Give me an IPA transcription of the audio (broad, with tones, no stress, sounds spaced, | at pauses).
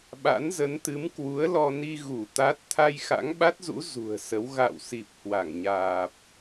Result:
ɓ a̰˧˥ n z ə˨˦ n t̪ ɨ˨˦ m k w u˨˦ ə̯ l ɔ˧ n i˧ ɣ u˧˩ t̪ a˦˥ t̚ t̪ʰ a˧ j x a̰˧˥ ŋ ɓ a˦˥ t̚ z ṵ˧˥ z ṳ˨˩ ə̯ s ə˨˦ w ɣ a̰˧˨ w s i˨˩ p̚ h w a˧˩ ŋ ɲ aː˨˩ p̚